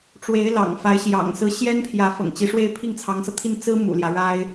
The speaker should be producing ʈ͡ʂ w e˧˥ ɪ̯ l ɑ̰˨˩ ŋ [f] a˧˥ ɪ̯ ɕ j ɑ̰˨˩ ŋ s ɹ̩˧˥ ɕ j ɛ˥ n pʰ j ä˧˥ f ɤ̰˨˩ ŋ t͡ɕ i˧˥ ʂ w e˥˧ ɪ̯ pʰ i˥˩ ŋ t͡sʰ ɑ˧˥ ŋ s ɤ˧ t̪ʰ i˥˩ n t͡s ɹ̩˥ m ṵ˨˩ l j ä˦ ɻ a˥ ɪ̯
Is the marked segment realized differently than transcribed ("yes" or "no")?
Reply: no